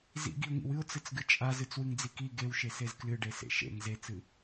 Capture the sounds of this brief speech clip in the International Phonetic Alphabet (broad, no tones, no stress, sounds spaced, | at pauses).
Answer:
z ḭ ɡ i ʊ̯ ŋ ḭ w ɨ ʊ̯ t͡s ɨ t͡s ɡ ɨ t͡ʃʼ a z ɨ t͡s w ɨ ŋ d͡z i k i ɡ e w ʃ e s e z k l ɨ ɖ e s ḛ ʃ ḛ ŋ z e t͡s ɨ